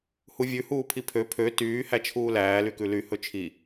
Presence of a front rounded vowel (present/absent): present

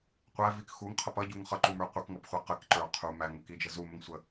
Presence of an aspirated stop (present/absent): present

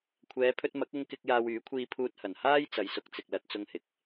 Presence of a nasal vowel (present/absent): absent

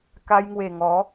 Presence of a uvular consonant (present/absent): absent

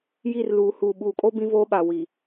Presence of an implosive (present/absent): present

